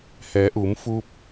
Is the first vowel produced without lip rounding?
yes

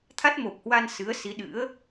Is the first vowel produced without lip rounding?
yes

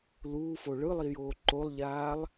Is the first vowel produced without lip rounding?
no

